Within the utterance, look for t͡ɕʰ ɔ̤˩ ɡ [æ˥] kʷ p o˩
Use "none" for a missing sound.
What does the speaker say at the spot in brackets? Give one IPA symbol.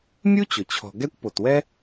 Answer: ɛ˥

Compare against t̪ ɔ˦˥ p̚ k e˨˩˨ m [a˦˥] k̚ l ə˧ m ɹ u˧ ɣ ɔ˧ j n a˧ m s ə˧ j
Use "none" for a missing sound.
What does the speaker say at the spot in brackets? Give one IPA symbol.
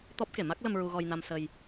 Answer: a˦˥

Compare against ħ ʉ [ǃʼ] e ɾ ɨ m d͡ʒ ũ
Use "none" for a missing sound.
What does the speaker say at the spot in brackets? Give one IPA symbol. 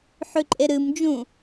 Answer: ǃʼ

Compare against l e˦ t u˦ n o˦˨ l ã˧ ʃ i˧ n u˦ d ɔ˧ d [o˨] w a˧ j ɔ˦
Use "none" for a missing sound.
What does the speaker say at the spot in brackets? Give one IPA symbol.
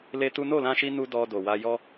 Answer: o˨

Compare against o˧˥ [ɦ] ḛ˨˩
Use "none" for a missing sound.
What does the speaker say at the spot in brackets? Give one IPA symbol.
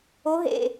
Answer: ɦ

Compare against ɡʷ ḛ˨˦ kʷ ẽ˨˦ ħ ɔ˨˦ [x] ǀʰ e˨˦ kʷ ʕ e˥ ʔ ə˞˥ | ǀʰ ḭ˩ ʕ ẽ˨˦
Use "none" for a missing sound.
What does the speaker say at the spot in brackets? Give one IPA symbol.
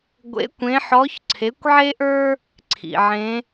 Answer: ç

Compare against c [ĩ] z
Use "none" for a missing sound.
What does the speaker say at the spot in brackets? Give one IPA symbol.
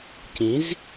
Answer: ĩ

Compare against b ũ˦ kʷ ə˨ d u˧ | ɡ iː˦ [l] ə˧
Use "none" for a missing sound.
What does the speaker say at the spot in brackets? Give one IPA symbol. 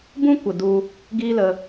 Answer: l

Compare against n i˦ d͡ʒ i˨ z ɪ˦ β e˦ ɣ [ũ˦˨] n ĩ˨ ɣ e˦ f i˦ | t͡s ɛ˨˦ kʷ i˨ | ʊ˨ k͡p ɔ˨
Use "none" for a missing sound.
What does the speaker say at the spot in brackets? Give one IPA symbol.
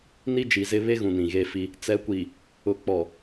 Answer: ũ˨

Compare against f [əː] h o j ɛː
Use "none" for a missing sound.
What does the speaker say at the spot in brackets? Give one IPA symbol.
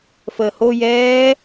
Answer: əː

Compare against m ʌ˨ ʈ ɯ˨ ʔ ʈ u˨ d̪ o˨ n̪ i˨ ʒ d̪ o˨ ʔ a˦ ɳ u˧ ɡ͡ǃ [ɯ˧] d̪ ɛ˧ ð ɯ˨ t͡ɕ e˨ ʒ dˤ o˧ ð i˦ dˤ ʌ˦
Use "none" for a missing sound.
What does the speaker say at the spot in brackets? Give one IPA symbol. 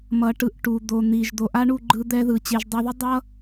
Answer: ɯ˧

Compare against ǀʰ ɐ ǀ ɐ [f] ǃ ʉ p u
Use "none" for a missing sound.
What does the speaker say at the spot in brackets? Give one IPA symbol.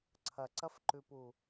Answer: f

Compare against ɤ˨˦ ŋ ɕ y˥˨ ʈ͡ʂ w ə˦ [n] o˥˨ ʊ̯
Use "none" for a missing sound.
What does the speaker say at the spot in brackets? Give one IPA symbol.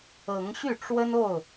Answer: n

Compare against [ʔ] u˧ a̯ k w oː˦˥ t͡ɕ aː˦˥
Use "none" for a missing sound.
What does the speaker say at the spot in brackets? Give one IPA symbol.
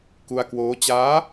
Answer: k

